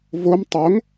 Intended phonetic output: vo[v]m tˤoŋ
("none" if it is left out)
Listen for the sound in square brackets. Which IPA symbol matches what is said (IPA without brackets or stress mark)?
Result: none